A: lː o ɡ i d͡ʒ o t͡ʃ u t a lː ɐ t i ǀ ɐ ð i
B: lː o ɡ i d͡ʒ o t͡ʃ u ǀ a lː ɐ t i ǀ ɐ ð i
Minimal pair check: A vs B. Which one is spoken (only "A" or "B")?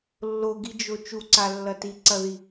B